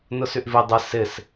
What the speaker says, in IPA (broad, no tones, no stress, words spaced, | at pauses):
nʊsyʔvi dˤɪ sɪs